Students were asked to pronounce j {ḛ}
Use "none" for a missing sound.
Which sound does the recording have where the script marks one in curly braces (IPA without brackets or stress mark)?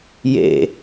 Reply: ḛ